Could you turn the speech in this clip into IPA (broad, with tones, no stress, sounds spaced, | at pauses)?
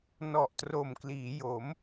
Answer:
n ɔ˨˩ ʔ t r o˨˩ m k l iː˩˦ j o˩˦ m